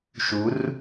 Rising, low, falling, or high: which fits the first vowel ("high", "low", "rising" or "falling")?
rising